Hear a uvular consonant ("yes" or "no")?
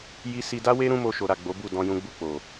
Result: no